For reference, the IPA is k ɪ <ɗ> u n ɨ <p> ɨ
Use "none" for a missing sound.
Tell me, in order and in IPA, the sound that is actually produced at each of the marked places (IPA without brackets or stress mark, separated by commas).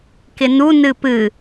n, p